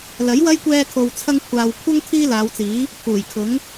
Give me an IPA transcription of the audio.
l ɐ˨˥ j w ɐ˥ j kʷ ɛː˧ kʰ o˨ w t͡sʰ ɐ˧ ŋ kʷʰ aː˨ w kʷʰ ɐ˥ ŋ t̪ʰ iː˥ l aː˨˧ w t͡s iː˨˥ | pʰ uː˨˩ j kʰ ʊ˨˥ ŋ

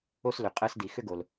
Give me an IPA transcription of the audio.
o˥ s l ʏ˩ qʼ əː˥ s d i˩ x ʏ˥ ɡ o˩ l

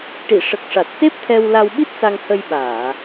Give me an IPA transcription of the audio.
ʈ i˨˩˨ ʂ ə˨˩ k̚ ʂ a˨˩ t̚ s e˦˥ p̚ t̪ʰ ɛ˧ w l a˧ w ɓ i˦˥ t̚ s a˧ ŋ h ə˧ j ɓ aː˨˩˨

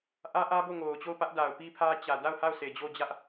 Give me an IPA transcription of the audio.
ʔ ä˦ ʔ ä˦ b o˦˨ ŋ o˨ ʊ̯ t͡ɕ o˦˨ ʊ̯ p ä˦ ʔ d a˨ ʊ̯ p i˦ pʰ ä˦ t͡ɕ ä˨ d a˦˨ ʊ̯ h a˦˨ ʊ̯ sʰ e˨ d͡ʑ o˦˨ d͡ʑ ä˦ ʔ

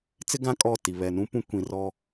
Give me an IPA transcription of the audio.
t͡s ɪ˦ ɡ ã˦ kʼ ɔ˦˨ t i˨ β ɛ˨ n ũ˦ p ũ˦ kʷ ĩ˨ r ɔ˦

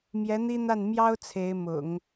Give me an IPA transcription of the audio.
m j ɛ˧˥ n̪ i˥ n̪ a˥˩ n m j ɑ˥ ʊ̯ t͡sʰ e˧˥ ɪ̯ m ʊ̰˨˩˦ ŋ

